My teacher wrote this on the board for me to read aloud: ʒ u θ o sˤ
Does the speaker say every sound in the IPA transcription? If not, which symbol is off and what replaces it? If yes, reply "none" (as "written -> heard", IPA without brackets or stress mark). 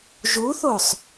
none